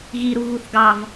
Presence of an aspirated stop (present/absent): absent